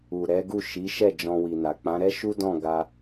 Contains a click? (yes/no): no